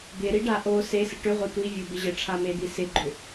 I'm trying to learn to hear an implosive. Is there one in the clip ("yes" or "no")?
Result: no